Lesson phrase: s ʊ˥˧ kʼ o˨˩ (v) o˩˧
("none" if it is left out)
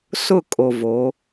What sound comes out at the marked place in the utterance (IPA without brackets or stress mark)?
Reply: v